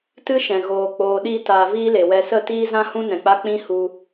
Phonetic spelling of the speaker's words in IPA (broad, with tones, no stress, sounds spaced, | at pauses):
t ɨ˦ ʃ ɛ̃˨ ɣ oː˧ k͡p oː˧ ɗ i˦ t aː˧ v iː˦ l e˨ w ɛ˧ s ə˦˨ t iː˦ z ã˦ h ũ˦ n ɛ̃˨ k͡p a˦ k͡p ĩ˦ h u˧